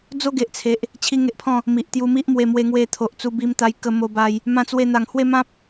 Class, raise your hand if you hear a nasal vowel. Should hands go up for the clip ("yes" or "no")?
yes